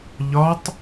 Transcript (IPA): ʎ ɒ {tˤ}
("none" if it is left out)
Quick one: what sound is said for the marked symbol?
tˤ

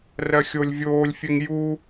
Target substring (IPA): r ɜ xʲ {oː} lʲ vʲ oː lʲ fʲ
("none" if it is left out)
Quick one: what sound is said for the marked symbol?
o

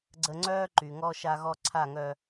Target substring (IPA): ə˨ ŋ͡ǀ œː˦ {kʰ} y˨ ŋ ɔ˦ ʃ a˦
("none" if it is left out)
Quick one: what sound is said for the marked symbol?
ǃ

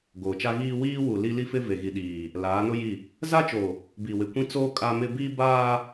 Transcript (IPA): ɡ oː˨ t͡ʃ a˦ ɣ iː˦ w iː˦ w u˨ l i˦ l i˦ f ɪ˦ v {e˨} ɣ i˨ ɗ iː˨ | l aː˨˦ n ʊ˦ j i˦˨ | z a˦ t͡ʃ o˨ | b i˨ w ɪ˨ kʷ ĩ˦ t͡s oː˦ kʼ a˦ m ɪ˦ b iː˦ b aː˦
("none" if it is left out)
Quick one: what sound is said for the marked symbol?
e˨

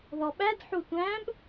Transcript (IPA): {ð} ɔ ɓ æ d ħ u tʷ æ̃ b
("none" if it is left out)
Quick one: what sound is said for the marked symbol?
ð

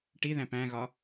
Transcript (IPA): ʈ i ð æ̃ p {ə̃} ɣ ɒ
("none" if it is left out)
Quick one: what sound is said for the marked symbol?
æ̃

